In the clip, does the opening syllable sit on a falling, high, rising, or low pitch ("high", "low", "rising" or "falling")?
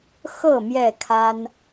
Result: falling